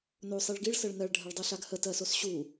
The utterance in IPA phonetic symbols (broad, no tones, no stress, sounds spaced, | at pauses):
n o sˤ i ɭ ɡ i ɭ s ɜ ɭ n ɜ ɭ ɖʱ ɜ ɭ dˤ i ɬ a ɡ h ə t ɜ s o s ɕ u